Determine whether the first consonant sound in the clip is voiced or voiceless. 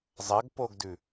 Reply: voiced